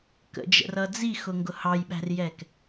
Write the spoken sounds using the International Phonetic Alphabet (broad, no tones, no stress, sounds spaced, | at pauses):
k ə̰ d͡ʒ ə̰ r ʌ d͡z i x ʊ ŋ ɡ ʊ h ɑ j ɓ æ̤ r j ɛ k